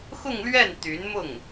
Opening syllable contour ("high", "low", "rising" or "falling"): falling